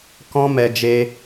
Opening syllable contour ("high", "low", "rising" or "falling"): high